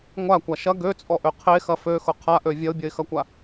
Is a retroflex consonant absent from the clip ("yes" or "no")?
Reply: yes